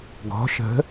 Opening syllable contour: rising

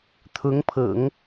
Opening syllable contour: rising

